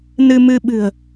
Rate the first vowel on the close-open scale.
close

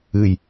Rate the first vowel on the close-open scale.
close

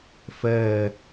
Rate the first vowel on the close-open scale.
mid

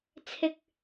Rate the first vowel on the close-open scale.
close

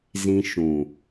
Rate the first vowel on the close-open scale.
close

